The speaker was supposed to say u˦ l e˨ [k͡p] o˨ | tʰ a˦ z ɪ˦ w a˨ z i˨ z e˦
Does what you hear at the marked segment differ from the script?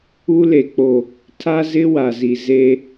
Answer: no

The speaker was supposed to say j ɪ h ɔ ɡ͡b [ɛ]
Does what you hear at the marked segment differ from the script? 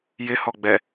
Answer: no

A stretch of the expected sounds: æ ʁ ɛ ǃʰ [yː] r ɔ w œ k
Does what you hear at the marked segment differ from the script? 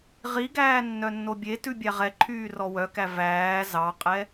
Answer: no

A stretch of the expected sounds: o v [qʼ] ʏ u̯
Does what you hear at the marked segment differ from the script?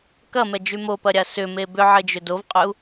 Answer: no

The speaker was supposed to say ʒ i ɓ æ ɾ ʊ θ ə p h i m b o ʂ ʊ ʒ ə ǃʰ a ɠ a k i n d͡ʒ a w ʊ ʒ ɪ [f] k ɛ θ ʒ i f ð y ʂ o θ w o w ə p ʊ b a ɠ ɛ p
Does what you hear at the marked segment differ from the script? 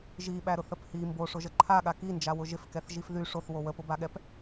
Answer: no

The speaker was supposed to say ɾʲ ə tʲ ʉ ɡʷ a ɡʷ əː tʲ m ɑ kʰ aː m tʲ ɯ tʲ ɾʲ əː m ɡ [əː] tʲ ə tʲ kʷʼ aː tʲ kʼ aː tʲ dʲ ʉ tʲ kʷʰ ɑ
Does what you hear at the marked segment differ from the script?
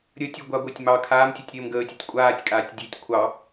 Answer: no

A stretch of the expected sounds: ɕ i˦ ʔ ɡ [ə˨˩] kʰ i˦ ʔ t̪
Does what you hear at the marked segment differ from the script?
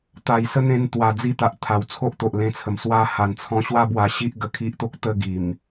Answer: yes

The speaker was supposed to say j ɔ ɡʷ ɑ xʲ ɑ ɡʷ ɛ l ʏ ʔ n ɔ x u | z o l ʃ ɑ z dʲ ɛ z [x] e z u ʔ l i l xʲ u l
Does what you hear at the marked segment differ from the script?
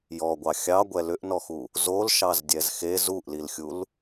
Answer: no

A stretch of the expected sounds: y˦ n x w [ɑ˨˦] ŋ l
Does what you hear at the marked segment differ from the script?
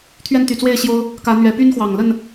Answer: yes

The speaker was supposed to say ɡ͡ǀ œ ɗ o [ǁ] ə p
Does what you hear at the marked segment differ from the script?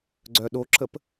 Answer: no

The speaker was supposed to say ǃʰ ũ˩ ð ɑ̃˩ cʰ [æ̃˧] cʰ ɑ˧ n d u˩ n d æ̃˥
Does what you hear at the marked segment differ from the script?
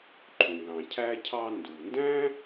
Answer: yes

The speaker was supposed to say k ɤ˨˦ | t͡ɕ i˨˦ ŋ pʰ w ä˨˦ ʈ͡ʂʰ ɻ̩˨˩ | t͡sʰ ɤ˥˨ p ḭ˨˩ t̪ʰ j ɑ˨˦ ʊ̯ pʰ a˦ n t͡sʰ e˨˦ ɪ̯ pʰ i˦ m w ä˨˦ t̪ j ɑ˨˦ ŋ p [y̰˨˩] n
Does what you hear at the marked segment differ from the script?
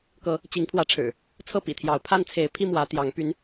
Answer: yes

